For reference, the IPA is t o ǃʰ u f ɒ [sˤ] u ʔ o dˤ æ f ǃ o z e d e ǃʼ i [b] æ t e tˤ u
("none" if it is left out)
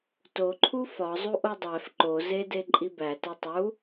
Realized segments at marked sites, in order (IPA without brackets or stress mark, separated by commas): zˤ, b